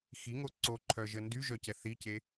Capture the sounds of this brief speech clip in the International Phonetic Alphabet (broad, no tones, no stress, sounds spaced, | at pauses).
x i ŋ o ǀ o ǃʰ œ ʒ ə n d y ʒ œ c ɛ θ i c e